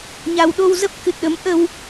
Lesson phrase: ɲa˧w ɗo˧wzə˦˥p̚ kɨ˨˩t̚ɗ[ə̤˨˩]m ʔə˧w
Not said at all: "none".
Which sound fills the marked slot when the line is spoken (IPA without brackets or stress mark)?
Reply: ə˨˦